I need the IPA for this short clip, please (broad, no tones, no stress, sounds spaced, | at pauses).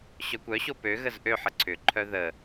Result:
ɕ œ kʷ œ ɕ o p ø ɣ ə z ʔ ø ħ ə ǀʰ ʏ ǃʰ œ ð ə